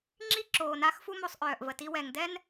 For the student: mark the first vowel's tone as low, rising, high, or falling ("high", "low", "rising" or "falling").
high